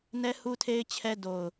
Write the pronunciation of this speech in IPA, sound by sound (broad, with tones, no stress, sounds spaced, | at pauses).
n ɛ˦ h u˦ tʰ e˦ ɪ̯ t͡ɕʰ ɛ˦ d o˨ ʊ̯